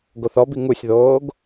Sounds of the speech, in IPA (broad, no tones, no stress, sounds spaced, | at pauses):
ɡ o θ ɔ b i ŋ u sʲ ð oː ɡ